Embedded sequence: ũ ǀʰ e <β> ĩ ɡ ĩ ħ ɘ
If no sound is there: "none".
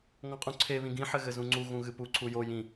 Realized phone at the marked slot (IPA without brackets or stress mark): β